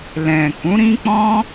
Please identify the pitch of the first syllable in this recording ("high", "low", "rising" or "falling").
low